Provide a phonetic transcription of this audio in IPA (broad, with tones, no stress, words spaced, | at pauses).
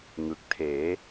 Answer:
ŋɯ˨˩k̚ tʰeː˩˦